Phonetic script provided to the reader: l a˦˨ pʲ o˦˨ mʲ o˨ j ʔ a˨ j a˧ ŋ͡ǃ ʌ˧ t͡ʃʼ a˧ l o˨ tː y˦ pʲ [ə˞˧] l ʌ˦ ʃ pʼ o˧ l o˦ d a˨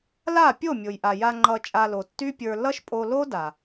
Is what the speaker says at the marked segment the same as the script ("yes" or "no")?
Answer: yes